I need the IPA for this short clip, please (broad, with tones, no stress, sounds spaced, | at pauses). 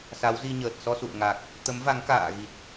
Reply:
s a˨˦ w z i˧ ɲ əː˨˩ t̚ s ɔ˧ s ṵ˧˨ ə̯ ŋ a˨˩ k̚ | t̪ ə˨˦ m v a˨˦ ŋ k a̰ː˧˨ ɣ i˨˩ t̚